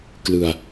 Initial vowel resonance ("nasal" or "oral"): oral